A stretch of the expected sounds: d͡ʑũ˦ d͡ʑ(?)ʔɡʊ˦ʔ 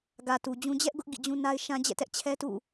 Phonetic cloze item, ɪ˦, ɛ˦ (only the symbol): ɛ˦